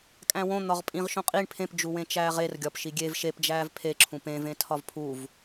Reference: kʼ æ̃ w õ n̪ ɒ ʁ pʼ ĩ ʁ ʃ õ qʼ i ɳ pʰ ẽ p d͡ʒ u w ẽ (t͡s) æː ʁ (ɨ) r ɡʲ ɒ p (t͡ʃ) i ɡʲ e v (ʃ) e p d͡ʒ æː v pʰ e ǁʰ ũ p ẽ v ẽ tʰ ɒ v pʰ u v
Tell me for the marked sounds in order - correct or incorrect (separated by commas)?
incorrect, incorrect, incorrect, correct